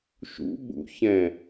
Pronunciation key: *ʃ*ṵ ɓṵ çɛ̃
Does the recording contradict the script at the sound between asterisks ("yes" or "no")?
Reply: no